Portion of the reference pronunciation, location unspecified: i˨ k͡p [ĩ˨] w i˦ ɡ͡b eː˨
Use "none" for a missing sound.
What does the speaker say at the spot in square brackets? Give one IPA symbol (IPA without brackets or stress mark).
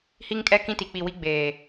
i˨